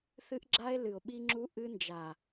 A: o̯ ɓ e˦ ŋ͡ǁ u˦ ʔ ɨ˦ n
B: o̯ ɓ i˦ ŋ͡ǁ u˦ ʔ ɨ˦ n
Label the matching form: B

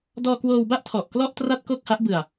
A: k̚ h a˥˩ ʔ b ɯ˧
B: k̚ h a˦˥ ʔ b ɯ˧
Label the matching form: B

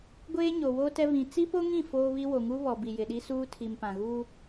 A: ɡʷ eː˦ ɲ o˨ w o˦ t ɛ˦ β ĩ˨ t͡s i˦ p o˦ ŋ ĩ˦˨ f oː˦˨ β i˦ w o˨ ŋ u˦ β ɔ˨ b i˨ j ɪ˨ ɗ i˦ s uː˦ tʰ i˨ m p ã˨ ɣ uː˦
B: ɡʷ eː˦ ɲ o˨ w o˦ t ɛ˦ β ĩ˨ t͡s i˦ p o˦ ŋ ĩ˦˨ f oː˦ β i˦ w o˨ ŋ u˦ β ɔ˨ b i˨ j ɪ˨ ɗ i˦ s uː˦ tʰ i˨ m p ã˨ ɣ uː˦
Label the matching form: B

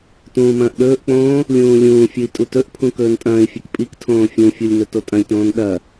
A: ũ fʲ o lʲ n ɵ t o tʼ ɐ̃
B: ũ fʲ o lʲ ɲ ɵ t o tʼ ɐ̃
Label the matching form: A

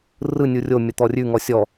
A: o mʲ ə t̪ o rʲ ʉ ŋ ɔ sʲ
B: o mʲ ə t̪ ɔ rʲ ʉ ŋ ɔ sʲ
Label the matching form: B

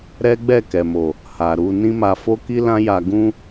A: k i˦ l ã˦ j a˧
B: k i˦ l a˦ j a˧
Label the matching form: A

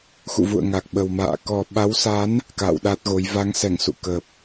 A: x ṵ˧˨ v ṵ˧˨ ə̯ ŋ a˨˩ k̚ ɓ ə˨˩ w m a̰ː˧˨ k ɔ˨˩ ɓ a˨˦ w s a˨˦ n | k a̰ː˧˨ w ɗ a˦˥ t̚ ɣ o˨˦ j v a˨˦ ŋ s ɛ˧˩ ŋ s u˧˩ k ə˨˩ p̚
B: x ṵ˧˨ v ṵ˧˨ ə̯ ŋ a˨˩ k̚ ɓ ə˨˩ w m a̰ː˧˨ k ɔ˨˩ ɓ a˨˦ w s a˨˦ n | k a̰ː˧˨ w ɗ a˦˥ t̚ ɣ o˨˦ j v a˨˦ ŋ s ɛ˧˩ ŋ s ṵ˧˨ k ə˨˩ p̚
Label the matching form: B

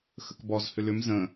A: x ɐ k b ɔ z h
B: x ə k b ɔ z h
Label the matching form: B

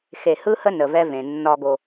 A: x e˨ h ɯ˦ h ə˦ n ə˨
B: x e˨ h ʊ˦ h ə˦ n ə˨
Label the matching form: A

